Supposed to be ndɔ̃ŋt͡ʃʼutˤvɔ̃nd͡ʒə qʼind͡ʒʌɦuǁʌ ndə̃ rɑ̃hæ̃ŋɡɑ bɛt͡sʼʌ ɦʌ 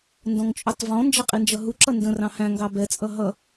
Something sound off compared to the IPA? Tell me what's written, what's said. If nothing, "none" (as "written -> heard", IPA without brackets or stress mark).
none